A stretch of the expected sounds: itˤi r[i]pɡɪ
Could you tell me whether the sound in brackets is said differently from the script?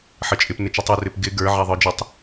yes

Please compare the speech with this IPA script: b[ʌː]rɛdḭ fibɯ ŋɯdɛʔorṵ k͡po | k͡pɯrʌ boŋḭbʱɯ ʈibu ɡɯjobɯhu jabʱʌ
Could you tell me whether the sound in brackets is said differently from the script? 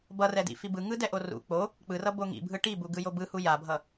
yes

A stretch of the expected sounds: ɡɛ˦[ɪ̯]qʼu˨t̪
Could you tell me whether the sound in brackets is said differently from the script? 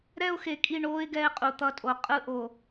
no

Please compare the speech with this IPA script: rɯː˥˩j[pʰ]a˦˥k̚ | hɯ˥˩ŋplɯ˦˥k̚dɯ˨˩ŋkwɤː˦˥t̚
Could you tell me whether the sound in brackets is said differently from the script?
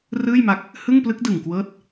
yes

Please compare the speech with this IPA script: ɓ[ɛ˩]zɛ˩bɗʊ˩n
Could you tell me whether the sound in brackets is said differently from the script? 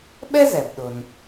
yes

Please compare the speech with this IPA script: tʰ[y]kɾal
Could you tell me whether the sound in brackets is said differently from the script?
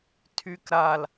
no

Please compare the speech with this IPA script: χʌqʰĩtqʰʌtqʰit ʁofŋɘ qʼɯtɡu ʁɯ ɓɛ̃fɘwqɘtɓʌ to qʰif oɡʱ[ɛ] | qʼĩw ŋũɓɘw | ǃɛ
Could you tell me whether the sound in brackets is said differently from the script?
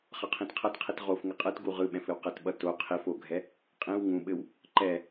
no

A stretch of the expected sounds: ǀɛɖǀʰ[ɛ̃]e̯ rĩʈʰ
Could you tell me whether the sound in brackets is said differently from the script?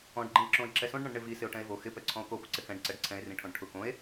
no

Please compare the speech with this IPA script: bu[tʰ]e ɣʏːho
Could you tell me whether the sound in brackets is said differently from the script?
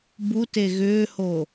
yes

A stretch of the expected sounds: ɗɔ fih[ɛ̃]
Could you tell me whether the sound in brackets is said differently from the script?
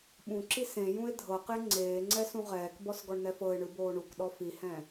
no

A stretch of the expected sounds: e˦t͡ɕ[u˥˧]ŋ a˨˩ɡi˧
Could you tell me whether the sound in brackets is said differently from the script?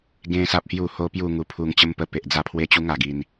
yes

